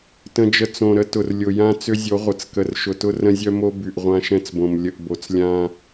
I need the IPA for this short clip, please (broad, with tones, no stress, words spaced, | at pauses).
tə̃˨d͡ʒə˨ t͡sõ˨ɾə˦ tʊ˨rlʲʊ˨ jã˦ t͡sʏ˦zʲo˨˦ ʁʷə˨t͡skə˨r ʃʊ˨tʊ˦rə̃˦ zʲœ˦mo˦ by˨ʔʁʷã˦ʃɛ̃˦t͡sbõ˨m lʲə˨ʔbo˨t͡slʲã˦